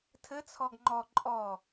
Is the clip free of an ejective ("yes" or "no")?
no